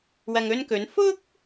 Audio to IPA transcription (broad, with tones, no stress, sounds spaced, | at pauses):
w ɐ˨ ŋ ɵ˧ n k ɵ˨˧ n f ʊ˥ k̚